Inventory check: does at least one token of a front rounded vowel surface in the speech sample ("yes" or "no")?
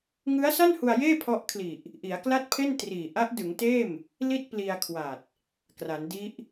no